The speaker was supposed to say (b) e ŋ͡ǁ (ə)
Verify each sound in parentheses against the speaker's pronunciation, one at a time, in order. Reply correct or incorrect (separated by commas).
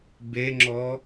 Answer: correct, incorrect